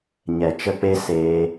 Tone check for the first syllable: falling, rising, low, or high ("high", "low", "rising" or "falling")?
low